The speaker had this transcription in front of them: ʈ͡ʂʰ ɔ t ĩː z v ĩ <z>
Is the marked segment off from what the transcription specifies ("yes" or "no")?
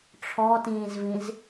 no